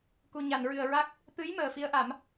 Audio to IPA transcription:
k u˨˩ ɲ a˨˩˨ n ɹ ɨ˨˩ ə̯ ɹ a˦˥ k̚ | t̪ ɨ˧˥ j m əː˨˩ f i˧˥ ə̯ ʔ a˨˩˦ m

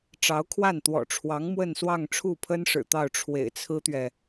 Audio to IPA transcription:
ʈ͡ʂ ɑ˧˥ ʊ̯ kʰ w a˥˩ n t̪ w ɔ̰˨˩ ʈ͡ʂʰ w ɑ˧˥ ŋ m w ə˥˧ n s w ɑ˥˧ ŋ ʈ͡ʂʰ u˥˩ pʰ ə˥ n ʂ ɻ̩˨˩ t̪ ɑ˥˩ ʊ̯ ʈ͡ʂʰ w ḛ˨˩ ɪ̯ t͡sʰ ɹ̩˥ t̪ ɥ ɛ˨

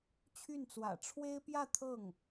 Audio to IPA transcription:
t͡ɕʰ y˥˩ n t͡s w ä̰˨˩ ʈ͡ʂʰ w e˥ ɪ̯ p j ä˥˧ t̪ʰ ɤ˥˩ ŋ

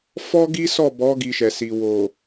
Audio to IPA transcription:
f ɔ˦ ɡ i˦ s ɔ˦˨ b ɔ˨˦ ɡ i˧ ʃ ɛ˨ s i˨ w o˨

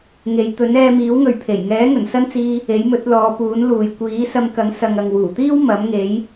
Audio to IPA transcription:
ŋ e˨˧ j t̪ ɵ˨˥ n ɛː˧ m iː˨˥ w ŋ ɵ˨ ɥ pʰ e˨˩ j ŋ ɛː˨˥ ŋ ɵ˨˩ n s ɐ˥ n t͡s iː˧ | e˨˥ j m ɵ˨˥ t̚ l ɔː˨˧ p uː˨˥ n l uː˨ j kʷ iː˨˥ s ɐ˧ m k ɐ˨˥ ŋ s ɐ˨ ŋ ɐ˨ ŋ w uː˨˩ t̪ iː˥ w m ɐ˨˥ m ŋ e˨˥ j

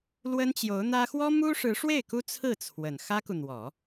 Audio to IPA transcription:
l w ə˥ n t͡ɕ j o˧˥ ʊ̯ n̪ ä˥ x w ɔ˥ m u˥ ʂ ɻ̩˧˥ ʂ w e˥˩ ɪ̯ k u˥ t͡sʰ ɹ̩˥˩ t͡sʰ w ə˨˩ n x ä˥ k u˨ n̪ w ɔ˨˩˦

